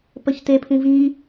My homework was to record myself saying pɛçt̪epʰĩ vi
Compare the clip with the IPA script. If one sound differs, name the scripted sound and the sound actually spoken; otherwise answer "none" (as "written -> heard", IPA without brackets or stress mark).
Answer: ɛ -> ə